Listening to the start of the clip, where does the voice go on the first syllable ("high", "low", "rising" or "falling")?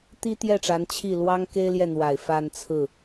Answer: high